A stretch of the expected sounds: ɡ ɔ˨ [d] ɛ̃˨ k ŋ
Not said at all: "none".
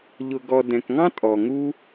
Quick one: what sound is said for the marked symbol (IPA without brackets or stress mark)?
d